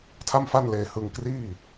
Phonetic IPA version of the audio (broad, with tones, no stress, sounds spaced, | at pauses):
tʰ a˥˩ m f a˥˩ n l eː˧ h ɯ˧ ŋ k r iː˥˩